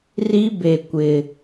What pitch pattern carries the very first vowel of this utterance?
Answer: high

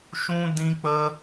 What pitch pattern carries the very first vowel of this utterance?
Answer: high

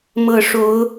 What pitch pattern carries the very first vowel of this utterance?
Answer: low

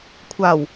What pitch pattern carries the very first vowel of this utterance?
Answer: low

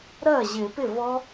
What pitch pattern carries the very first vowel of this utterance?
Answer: falling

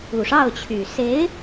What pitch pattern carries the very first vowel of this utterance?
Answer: low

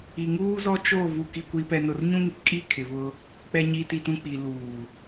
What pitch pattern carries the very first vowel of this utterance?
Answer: low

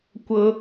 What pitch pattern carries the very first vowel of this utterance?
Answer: high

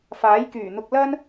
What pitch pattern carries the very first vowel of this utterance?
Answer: rising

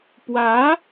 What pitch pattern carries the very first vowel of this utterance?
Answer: rising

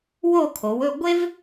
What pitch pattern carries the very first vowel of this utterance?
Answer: falling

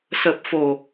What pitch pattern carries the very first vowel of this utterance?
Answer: low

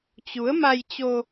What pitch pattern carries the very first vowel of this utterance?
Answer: rising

